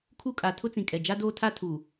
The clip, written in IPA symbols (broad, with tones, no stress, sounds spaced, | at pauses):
kʰ u˦ kʼ a˨ tʰ ʊ˦ t͡s ĩ˨ kʼ ɛ˨ d͡ʒ a˦ d oː˦ tʰ a˦ tʰ u˨